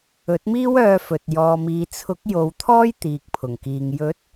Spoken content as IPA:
ɵ˨˥ t̚ m iː˥ w œː˧ f ɵ˨ t̚ j ɔː˨ m iː˨ t͡sʰ ʊ˨˥ k̚ j o˨˧ w t̪ʰ ɔː˥ j t̪ iː˨ k̚ pʰ ʊ˨˩ ŋ k iː˨ ŋ j ɵ˨˥ t̚

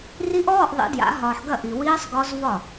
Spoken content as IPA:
r i˦˥ ʔ ɔː˧˥˧ ʔ ðˤ ḭ˨˩˦ d j a̰˨˩˦ ɦ ɒː˨ ħ ɡ ɐ˥˩ ʔ i˨ w iː˦˥ sˤ ɡ ɔ˦˥ z v ɒ˥˩

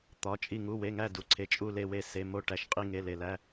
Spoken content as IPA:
t̪ ɒ˩˧˩ t͡ʃʼ i˧˩ ŋ u˩˧˩ w e˩˧˩ ŋ æ˧˩ d u˩ ǀʰ e˩˧˩ t͡ʃʼ u˧˩ l e˧˩ w e˧˩ s e˩˧˩ m o˧˩ ʈ æ˩ ʃ qʼ i˧˩ ŋ e˩˧˩ l e˩ l æ˩˧˩

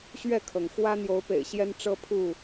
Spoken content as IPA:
ɕ ɥ ɛ˥˨ kʰ ɤ˩ ŋ x w ä˦ n̪ j o˨˦ ʊ̯ p ḛ˨˩ ɪ̯ ɕ j ɛ˦ n ʈ͡ʂ ɤ˦ pʰ u˥˨

